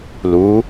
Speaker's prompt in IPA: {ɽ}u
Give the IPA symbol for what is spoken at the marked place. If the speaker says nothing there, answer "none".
l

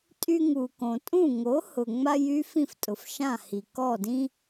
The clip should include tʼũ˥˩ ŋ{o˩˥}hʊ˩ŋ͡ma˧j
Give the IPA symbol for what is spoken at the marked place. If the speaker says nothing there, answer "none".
o˩˥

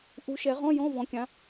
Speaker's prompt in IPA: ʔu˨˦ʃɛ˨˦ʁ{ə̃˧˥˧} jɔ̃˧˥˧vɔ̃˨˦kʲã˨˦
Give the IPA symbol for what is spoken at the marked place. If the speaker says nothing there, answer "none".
ɔ̃˧˥˧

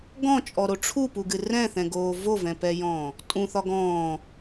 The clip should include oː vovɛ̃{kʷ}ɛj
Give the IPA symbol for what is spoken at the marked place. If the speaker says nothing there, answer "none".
p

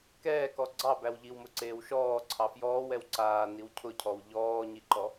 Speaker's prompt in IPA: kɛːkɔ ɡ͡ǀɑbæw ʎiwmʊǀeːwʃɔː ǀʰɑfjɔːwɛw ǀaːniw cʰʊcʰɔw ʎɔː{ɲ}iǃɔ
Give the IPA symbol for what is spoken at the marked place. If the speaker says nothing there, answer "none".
ɲ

